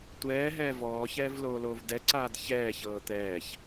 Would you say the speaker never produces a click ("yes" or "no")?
no